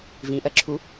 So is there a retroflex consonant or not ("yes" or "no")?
no